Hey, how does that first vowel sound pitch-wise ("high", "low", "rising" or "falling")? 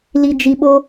low